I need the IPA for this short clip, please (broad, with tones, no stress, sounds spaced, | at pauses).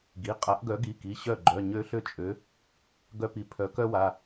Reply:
ɡ i˩˧˩ qʼ a˨˥ ʔ ɡ œ˨˥ ɡ i˩˧˩ k i˩˧˩ ɕ œ˥˩ ɡ͡ǃ œ˩˧˩ ɲ ø˥ ɬ ø˥˩ t͡ʃʼ ø˨˥ | ɡ œ˥ p i˨˥ pʰ œ˨˥ k œ˥ w a˩˧˩